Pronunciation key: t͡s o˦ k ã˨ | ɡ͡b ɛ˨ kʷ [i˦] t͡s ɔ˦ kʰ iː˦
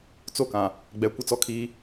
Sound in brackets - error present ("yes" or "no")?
yes